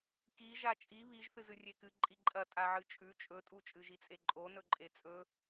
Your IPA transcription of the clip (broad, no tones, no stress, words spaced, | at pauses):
ki ʒat͡ʃʼi βiʒ θɨzɨrʲekɨ ǃʼiǃʼɐ tʼaʕɨt͡ʃʼʉ t͡ʃʼɵtʼu t͡ʃʼɨʒit͡sʼeǃʼo nɵǃʼet͡sʼɵ